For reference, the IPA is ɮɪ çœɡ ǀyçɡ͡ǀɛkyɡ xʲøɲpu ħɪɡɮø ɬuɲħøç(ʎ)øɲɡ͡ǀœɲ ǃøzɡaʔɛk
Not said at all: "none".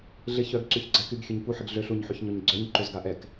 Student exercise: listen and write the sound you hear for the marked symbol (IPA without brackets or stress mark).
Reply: ɲ